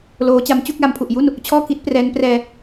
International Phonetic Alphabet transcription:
l oː˦˥ t͡ɕ a˦˥ m t͡ɕ u˥˩ k̚ l a˧ m pʰ u˨˩ ʔ j u˥˩ n | t͡ɕʰ ɔː˥˩ k i˦˥ t̚ p r ɛː˦˥ n p r ɛː˧

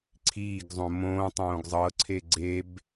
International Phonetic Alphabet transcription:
ǀʰ iː ɡ zˤ õ m õː tˤ õː ɡ zˤ ɤ ǀʰ e ɡ͡ǀ e b

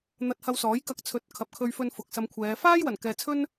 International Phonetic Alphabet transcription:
n̪ ɐ˧ t̚ h ɐ˧ w s ɔː˨˥ j k ɐ˧ k̚ t͡sʰ ɵ˨˥ t̚ kʰ ɐ˨ p̚ kʰ ɵ˧ ɥ f ɵ˧ n f ʊ˨ k̚ s ɐ˧ m kʷʰ ɛː˨˧ f aː˥ j w ɐ˨˩ n k ɛː˨ t͡sʰ ɵ˥ n

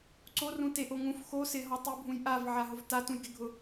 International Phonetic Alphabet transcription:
ǀ o r ũ t e ʔ o ŋ ũ f x o s ɪ ɦ ɔ tˤ u bʱ ũ j ʔ a v ʕ a ɦ ʊ v t a t ũ j ɡ ɪ ɡʱ ʊ

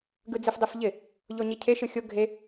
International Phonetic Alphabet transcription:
ɡ ɯ d͡z ɨ f dˤ e f ʎ ɪ | ʎ o ɲ i cʰ e ʃ ɯ xʲ o ɡʱ e

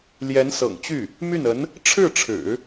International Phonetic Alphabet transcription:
l j ɛ˧˥ n s ɤ̰˨˩ ŋ t͡ɕ y˥˩ | m y˥˩ n ə˧˥ n | ʈ͡ʂʰ ɻ̩˥˩ ʈ͡ʂʰ ɻ̩˨˩˦

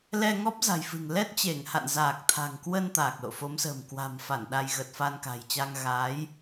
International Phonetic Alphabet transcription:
l ɛ˧ ŋ ɔ˦˥ p̚ z a̤˨˩ j f ɨ̤˨˩ ŋ l ɛ˦˥ t̚ t͡ɕ e˧˩ ŋ h a̰˧˨ n z aː˨˩ k̚ t̪ʰ a̤˨˩ ŋ k w ə˧ n t̪ aː˨˩ k̚ l o̰˧˨ f o˨˦ m s ə̤ː˨˩ m k w a̤˨˩ m f a˧˩ n ɗ a˧ j ɣ ə˨˩ t̚ f a˧ n k a̤˨˩ j t͡ɕ a˧ ŋ ɣ a˨˦ j

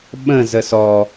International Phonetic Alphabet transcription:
ɓ ə̃ z ə s ɔ

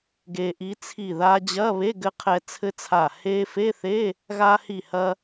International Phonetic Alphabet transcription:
ɡ e˧ ʔ i˧˥ t͡sʰ i˧˩ ð a˧ d͡ʑ ɐ˧˥˧ β e˧˥˧ ɡ ɘ˧ qʰ ɛ˧ t͡sʰ ɘ˧˥ t͡sʰ a˧˩ h e˧ f e˧˥˧ θ e˧˥˧ | ɣ a˧ h i˧˩ h ɐ˧

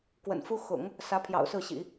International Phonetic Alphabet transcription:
k w ə̰˨˩ n f u˥ x ʊ̰˨˩˦ ŋ | s ä˧˥ pʰ j ɑ̰˨˩ ʊ̯ s ɹ̩˥˩ ɕ ḭ˨˩˦

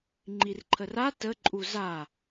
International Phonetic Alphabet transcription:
ŋ͡ǃ i r ǃʰ ə r a t ə ǃʼ u z a

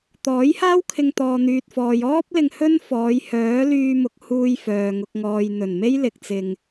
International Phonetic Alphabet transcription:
t̪ ɔː˨˥ j h aː˥ w kʰ ɪ˧ ŋ t̪ ɔː˨ n̪ yː˨ t̚ f ɔː˨ j ɔː˥ p̚ l ɪ˧ ŋ h ɵ˥ n f ɔː˨˧ j h œː˨˥ l yː˧ m ʊ˨ k̚ h uː˧ j f œː˨ ŋ ʊ˨ k̚ ŋ ɔː˨ j n̪ ɵ˨˩ n m e˥ j l ɪ˨ k̚ t͡s ɪ˧ ŋ

